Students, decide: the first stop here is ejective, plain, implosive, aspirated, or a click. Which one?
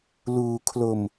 aspirated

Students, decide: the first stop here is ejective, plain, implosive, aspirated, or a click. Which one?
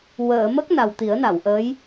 plain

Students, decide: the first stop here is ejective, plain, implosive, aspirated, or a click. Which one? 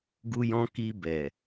plain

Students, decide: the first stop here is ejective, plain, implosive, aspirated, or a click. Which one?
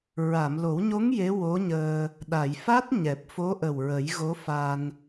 implosive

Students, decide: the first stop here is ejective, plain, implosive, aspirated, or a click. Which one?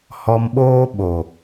implosive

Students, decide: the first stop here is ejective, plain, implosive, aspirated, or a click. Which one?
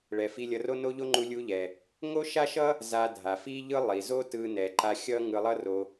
click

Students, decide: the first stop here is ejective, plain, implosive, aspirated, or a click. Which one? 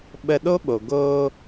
implosive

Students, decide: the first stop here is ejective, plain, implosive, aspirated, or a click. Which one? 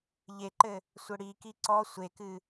click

